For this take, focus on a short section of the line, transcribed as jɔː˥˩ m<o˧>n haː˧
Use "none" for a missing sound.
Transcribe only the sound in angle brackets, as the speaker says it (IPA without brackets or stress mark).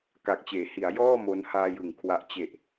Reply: o˦˥